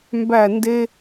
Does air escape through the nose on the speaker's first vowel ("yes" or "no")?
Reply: no